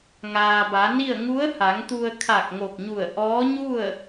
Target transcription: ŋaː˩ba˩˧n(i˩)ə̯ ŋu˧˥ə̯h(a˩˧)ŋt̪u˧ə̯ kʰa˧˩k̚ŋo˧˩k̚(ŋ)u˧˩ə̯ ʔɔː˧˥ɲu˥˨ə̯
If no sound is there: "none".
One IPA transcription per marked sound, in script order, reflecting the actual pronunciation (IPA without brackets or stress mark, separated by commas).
i˥˨, a˩˧, ɲ